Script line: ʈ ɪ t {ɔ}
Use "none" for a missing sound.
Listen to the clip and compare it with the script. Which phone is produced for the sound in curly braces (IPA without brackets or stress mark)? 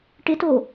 o